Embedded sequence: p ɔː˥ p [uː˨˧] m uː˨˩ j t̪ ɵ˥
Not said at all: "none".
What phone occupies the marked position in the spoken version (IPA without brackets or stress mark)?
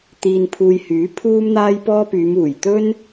yː˨˧